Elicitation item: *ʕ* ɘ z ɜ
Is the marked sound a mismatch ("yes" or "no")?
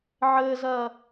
no